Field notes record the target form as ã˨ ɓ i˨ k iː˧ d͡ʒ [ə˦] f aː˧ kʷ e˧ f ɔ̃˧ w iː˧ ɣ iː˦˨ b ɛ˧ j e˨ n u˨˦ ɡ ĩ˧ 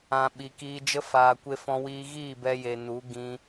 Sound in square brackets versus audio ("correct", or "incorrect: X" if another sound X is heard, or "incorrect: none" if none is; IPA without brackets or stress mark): correct